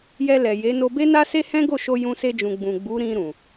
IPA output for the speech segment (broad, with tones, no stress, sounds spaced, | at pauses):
j ɛ˧ l ɛ˨ j e˨˦ n o˧ b e˦ n a˦ s e˦ h ɛ̃˦ ɡ o˦˨ ʃ o˧ j ũ˧ s e˧ d͡ʒ ũ˨ ɡ͡b ũ˨ ɡ͡b u˨˦ ɾ ĩ˧ ɾ ũ˨